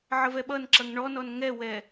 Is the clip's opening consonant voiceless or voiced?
voiced